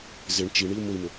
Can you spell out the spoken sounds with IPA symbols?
z ɪ ɳ t͡ʃ i ɳ i u̯ m ʊ i̯ m ʊ

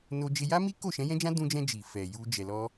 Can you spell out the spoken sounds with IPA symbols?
n o˦ d͡ʒ e˦ j a˦ m i˦ k o˦˨ ʃ ɛ̃˨˦ j ɛ̃˦ d͡ʒ ã˦ d ũ˧ d͡ʒ ɛ̃˧ d͡ʒ i˨ f ɛ˨ j u˧ d͡ʒ ɛ˨ l ɔ˧

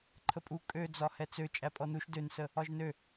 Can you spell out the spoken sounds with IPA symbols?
ǃʰ ə pʼ u kʼ ø d͡z ɒ h ɛ t͡s ø t͡ʃʼ æ pʼ ɔ n u ʃ d ø n s ə | ɒ ʒ n ø

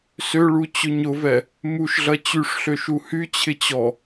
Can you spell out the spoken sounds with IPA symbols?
s ø ɭ u t͡ɕ ʊ ɲ ʊ v ɛ | m u ʃ ɮ ɐ t͡ɕ y ʂ ɬ ø ʃ u h y t͡ɕʰ ɪ t͡ɕ ɔ

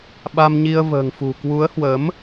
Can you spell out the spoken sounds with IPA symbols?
ɓ a˧ m ɲ i˧ ə̯ v ə̤ː˨˩ ŋ f ṳ˨˩ k w u˨˦ ə̯ h w əː˨˦ m

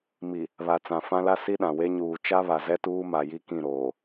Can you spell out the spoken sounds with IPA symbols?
m i˨ | β a˨ t͡s ã˨ f ã˦ l a˦ s i˦ ɗ ã˨ w e˦ ɲ uː˨ t͡ʃ a˦ β a˨ z ɛ˦ t uː˦ m a˨ j i˦ k ĩ˦˨ ɾ oː˨

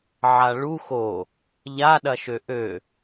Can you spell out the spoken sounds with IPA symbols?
ʕ a ɭ u x o | ʎ a ɗ ɐ ʃ ø ʔ ø

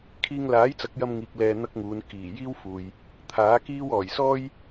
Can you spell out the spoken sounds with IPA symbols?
kʰ iː˧ ŋ l aː˨˥ j t͡s ɐ˨˥ k̚ j ɐ˧ m ŋ iː˨ k̚ l ɛː˧ n̪ ɐ˥ k̚ ŋ uː˨˧ n k iː˨˩ j iː˥ w f uː˨ j | t̪ʰ aː˨˥ k iː˥ w ɔː˨˩ j s ɔː˥ j

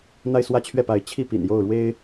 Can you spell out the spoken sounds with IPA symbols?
n̪ a˥˧ ɪ̯ s w ä˥˧ t͡ɕʰ ɥ ɛ˥˩ p a˧˥ ɪ̯ t͡ɕʰ i˥˩ p ḭ˨˩ n j o˥˩ ʊ̯ ɻ w e˥ ɪ̯

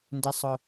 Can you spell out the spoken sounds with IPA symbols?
n d ɪ˩ sˤ ʊ˩

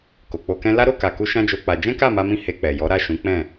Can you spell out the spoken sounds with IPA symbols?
k o˨ k͡p o˧ k ɛ̃˦ l a˦ ɾ o˦˨ k a˨ k u˧ ʃ ã˦ d͡ʒ o˧ k͡p a˧ d͡ʒ ɛ̃˦ k a˦˨ m a˧ m ĩ˧ h e˧ k͡p ɛ˨ j ɔ˨˦ ɾ a˦˨ ʃ ũ˨˦ k͡p ɛ̃˦˨

